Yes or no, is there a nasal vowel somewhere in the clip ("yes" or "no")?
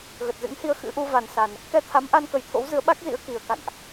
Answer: no